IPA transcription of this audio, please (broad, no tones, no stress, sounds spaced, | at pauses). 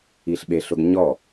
i ɬ ɓ e ɬ ʊ ɡ ɲ ɔ